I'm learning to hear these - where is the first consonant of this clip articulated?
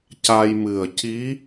palate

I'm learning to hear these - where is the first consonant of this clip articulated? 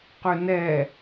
uvula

